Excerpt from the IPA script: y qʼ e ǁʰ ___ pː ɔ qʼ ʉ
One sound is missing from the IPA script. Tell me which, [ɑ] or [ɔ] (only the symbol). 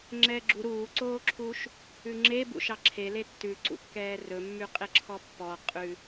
ɔ